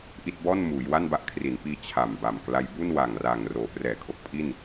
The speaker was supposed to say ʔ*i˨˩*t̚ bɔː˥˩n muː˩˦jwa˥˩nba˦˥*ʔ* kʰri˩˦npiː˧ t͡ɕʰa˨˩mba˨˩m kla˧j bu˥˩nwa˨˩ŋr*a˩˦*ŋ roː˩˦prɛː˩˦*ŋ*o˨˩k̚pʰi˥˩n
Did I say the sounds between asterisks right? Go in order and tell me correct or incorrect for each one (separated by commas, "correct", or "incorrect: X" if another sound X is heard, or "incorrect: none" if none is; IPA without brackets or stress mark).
incorrect: i˥˩, correct, incorrect: a˨˩, incorrect: kʰ